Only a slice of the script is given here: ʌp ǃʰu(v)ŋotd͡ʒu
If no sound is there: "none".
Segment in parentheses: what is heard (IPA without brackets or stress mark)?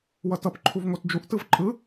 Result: v